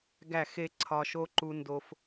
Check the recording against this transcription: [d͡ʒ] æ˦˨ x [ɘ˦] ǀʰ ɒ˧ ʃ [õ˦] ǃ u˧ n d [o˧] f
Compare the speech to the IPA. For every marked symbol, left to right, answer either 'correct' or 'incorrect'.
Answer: incorrect, incorrect, incorrect, correct

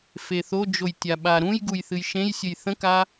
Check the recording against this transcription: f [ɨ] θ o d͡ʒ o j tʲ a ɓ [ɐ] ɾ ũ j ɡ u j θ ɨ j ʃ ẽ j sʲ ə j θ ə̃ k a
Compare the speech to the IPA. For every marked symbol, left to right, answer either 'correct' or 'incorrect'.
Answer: incorrect, incorrect

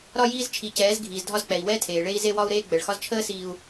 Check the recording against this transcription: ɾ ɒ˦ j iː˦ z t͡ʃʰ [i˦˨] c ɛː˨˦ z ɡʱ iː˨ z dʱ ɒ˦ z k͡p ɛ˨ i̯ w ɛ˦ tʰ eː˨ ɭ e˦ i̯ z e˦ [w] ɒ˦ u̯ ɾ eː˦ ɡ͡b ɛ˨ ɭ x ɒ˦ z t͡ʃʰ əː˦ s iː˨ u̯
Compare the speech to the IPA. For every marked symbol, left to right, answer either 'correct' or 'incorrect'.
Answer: incorrect, correct

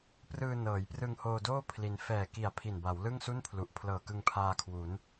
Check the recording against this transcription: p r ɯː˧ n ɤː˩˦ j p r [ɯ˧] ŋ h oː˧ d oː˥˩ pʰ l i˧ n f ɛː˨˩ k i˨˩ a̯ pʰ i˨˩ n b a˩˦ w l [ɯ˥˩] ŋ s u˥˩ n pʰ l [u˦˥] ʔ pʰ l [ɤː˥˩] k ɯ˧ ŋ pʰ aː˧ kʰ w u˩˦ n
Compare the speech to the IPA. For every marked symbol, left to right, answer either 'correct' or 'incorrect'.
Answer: correct, correct, incorrect, incorrect

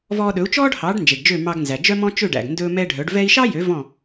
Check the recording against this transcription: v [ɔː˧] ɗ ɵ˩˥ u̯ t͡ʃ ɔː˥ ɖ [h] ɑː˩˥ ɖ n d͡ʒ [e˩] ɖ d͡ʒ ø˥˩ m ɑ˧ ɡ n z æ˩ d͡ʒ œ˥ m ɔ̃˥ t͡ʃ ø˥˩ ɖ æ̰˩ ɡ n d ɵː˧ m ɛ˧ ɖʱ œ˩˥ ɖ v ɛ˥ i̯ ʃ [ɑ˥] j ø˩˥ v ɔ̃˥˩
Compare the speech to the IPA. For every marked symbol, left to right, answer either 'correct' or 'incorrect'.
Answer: correct, correct, correct, correct

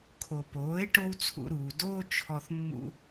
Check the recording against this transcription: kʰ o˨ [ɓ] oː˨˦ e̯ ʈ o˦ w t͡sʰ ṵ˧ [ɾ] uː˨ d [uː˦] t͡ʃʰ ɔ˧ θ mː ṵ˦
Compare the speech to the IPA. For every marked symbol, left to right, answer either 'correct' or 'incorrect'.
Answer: incorrect, correct, incorrect

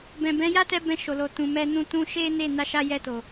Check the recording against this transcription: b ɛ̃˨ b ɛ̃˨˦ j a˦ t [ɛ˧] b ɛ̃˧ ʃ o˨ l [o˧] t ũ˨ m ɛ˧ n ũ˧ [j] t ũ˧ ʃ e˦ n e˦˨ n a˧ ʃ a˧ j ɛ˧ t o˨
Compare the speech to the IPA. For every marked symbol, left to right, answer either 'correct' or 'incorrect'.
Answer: correct, incorrect, incorrect

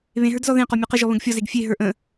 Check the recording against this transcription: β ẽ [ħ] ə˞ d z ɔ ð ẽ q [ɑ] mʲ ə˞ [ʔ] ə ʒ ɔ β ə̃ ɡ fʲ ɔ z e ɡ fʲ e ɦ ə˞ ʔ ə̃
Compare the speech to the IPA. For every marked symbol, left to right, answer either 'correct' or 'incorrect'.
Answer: incorrect, incorrect, incorrect

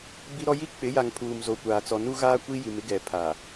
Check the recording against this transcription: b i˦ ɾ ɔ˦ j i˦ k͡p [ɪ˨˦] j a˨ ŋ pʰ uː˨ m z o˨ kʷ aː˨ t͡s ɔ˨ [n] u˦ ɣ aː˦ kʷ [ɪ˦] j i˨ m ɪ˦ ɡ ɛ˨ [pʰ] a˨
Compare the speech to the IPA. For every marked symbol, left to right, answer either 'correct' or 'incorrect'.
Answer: correct, correct, incorrect, correct

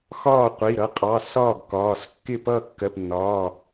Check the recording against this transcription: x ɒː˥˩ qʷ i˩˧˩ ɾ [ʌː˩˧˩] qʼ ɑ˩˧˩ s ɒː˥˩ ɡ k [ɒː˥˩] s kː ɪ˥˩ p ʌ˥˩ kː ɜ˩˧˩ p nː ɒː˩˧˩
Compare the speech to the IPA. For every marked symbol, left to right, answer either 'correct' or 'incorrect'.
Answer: incorrect, incorrect

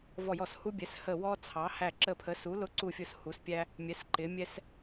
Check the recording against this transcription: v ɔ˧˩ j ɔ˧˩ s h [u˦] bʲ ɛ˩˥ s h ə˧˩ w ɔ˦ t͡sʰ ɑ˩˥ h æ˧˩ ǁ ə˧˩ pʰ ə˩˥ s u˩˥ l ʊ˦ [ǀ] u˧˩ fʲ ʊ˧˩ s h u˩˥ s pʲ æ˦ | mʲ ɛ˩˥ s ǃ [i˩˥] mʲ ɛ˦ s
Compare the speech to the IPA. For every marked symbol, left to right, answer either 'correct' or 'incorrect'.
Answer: correct, correct, incorrect

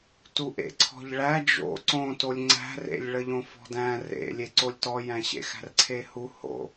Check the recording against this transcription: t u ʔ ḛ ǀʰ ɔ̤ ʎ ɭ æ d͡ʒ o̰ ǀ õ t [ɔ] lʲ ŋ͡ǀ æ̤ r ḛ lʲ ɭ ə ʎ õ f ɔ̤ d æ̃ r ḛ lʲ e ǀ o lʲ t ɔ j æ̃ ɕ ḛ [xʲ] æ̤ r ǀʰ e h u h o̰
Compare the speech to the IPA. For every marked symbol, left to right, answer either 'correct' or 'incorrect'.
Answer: incorrect, incorrect

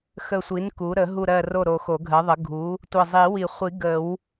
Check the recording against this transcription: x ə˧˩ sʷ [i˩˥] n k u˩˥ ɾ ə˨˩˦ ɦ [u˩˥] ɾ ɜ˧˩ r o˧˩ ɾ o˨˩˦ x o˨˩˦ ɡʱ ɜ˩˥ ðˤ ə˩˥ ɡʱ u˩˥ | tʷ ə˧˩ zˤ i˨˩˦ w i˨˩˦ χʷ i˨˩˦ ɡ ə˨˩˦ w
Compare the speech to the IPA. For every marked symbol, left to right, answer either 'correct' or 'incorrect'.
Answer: correct, incorrect

